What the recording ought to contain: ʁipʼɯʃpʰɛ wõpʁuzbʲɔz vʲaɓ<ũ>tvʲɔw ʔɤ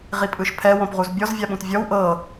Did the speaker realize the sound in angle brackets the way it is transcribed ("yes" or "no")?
yes